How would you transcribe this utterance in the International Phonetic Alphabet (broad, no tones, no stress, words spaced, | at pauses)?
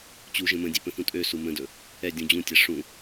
t͡ɕu ʒə̃mə̃dʲe pə̃θũtʼøsu mə̃dɵ | ɛ dʲũd͡ʑũtʲa ʂũ